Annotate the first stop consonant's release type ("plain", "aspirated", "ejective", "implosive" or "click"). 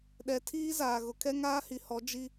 implosive